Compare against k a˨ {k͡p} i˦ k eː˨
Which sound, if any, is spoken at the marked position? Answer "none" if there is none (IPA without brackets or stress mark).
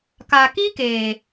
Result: k